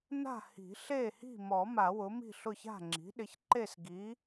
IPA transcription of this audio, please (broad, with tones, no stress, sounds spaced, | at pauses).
n a̤˥˨ h i̤˨˩˦ ɬ e˥˨ h i̤˥˨ m ɔ˨˩˦ m a˨˩˦ w ʊ˩˥ m i̤˥˨ ɬ ʊ˥˨ ç a̤˥˨ ŋ͡ǁ i̤˩˥ ɗ ɪ˩˥ ç ǃ e˥˨ s ɡ i˩˥